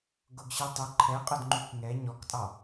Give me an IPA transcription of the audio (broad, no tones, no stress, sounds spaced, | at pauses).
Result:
ɡ ʊ ɡ ɕ i tˤ ʊ ǃʰ ɛ qʼ ʊ d ŋ͡ǃ u k ŋ ɛ ɲ ɔ k tʼ ɑ